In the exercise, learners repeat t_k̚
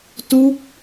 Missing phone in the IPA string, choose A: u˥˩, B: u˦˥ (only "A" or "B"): B